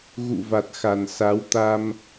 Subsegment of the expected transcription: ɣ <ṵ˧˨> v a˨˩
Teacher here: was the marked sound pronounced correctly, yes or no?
yes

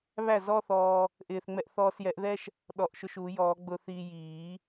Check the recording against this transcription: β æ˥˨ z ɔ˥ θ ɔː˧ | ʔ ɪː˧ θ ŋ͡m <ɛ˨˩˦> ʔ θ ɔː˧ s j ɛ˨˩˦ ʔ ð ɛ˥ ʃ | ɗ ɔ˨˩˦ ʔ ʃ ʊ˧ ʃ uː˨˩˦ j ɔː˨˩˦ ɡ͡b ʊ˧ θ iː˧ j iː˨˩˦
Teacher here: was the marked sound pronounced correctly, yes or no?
no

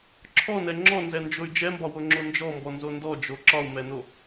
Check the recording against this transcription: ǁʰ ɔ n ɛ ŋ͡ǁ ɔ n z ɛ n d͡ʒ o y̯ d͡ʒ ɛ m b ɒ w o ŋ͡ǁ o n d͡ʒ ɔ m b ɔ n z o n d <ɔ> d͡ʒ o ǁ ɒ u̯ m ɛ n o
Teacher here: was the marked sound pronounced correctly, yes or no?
yes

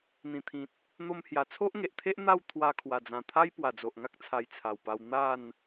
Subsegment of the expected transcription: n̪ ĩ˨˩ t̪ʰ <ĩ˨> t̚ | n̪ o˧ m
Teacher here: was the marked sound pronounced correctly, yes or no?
yes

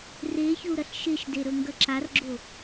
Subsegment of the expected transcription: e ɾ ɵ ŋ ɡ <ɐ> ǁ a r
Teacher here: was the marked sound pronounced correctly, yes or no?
yes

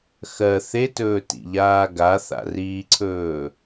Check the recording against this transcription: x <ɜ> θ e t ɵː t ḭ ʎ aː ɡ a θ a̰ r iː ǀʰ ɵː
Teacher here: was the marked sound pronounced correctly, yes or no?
yes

